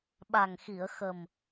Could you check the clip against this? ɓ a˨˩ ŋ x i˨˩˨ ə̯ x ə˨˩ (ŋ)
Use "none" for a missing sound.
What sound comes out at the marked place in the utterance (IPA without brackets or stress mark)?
m